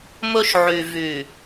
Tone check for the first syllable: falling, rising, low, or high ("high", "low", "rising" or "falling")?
high